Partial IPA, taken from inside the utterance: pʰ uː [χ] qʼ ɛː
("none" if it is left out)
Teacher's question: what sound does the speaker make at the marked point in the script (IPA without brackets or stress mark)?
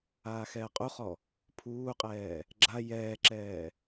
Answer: none